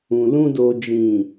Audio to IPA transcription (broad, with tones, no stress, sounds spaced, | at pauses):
ũ˨ l ũ˧ d o˨ d͡ʒ ĩ˨